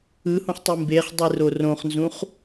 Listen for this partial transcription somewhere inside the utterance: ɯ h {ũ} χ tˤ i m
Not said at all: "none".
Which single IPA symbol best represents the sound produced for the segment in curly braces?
ũ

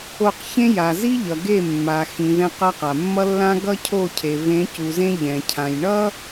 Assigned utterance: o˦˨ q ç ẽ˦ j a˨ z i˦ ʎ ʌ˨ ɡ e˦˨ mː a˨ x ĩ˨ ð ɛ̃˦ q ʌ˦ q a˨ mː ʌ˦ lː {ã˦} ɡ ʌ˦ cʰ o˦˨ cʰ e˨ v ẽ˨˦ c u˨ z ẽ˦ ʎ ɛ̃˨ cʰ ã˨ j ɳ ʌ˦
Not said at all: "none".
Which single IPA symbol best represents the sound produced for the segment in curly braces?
ã˦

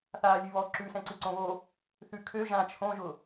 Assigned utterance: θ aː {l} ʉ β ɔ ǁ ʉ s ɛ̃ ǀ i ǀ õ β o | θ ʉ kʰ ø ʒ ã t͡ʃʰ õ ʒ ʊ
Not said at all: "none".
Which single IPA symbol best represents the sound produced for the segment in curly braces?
lʲ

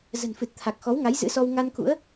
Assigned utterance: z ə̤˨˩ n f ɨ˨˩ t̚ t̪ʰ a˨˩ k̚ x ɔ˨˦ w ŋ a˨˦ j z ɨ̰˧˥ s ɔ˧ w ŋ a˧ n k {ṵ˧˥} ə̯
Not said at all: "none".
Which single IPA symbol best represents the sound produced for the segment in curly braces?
ṵ˧˥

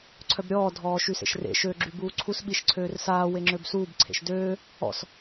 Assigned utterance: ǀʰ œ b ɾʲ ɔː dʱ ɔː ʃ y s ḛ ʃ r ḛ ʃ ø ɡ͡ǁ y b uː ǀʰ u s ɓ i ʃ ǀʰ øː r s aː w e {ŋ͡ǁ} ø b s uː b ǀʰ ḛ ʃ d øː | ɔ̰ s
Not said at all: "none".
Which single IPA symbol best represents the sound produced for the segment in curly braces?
ŋ͡ǁ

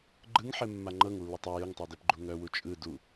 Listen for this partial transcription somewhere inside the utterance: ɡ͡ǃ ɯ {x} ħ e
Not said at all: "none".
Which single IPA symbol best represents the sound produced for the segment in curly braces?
ŋ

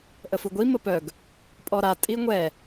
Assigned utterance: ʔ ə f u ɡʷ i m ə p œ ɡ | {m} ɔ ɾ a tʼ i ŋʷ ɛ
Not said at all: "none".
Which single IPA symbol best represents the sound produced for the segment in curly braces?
pʼ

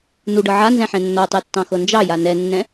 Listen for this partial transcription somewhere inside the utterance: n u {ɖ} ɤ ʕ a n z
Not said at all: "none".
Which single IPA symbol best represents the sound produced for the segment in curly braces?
ɖ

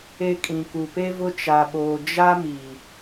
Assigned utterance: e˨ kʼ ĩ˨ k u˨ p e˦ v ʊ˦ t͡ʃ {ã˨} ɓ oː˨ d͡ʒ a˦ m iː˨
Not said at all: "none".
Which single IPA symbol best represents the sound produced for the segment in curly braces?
a˨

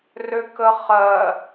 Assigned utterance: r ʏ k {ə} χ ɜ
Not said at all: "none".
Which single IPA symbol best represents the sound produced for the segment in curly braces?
ə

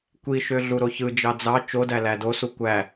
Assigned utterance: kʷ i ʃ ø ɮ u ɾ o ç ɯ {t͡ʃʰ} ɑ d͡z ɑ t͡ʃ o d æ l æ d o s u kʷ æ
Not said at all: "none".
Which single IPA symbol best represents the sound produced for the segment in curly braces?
d͡ʒ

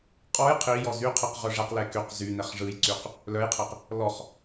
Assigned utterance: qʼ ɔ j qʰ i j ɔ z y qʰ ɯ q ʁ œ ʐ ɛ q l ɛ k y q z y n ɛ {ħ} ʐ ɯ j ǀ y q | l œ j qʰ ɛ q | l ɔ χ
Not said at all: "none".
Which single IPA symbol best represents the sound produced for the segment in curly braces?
χ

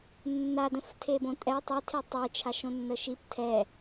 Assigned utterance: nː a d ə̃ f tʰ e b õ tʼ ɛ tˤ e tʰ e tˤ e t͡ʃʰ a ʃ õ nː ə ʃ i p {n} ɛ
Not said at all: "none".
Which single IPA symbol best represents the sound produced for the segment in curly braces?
tʰ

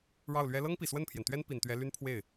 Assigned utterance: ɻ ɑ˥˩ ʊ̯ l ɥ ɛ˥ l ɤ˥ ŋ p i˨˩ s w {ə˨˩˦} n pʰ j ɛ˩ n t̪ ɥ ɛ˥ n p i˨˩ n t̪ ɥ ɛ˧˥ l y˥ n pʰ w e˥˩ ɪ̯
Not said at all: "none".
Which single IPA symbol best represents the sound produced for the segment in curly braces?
ə˥˩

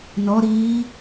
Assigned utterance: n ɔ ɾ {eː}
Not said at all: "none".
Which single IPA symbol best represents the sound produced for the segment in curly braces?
iː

